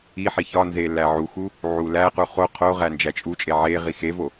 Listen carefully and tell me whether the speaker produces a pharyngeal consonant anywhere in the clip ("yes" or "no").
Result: yes